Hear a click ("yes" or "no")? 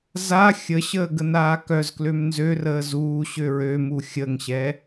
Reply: no